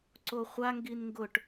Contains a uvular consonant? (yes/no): yes